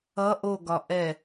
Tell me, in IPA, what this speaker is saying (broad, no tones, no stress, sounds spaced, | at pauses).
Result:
ʌ ʔ o ɡ ɒ ʔ ɛ